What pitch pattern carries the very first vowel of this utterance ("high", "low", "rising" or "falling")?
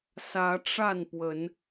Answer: rising